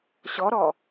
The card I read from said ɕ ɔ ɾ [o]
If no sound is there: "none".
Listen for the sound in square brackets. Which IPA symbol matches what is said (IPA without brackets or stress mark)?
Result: ɔ